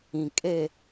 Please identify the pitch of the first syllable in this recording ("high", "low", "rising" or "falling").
low